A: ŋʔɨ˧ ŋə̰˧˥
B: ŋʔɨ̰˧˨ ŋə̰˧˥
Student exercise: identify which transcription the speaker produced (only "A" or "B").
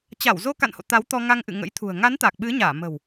B